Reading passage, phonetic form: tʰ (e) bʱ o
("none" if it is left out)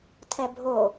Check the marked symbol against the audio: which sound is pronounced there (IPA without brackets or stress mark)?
ɛ